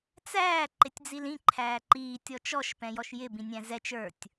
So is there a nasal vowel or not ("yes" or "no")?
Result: yes